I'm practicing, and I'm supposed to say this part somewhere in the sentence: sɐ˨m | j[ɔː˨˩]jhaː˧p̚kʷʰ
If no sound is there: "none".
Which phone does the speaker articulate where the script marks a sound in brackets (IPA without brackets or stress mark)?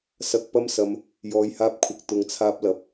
ɔː˨